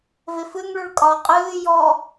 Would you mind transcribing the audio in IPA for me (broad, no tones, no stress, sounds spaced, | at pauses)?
v e f ɨ ŋ ɭ ʉ ɭ kʼ ɒ qʼ ɨː j ɔ